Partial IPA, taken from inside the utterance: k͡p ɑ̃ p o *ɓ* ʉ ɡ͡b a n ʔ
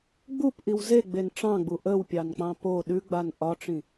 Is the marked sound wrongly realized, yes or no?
yes